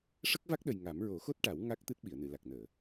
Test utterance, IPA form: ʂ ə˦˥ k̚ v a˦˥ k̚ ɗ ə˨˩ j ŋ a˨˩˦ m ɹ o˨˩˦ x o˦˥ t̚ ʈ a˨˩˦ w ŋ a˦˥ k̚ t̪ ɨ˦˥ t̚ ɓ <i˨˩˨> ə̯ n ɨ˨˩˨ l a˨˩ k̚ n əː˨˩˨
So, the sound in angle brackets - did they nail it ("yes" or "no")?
yes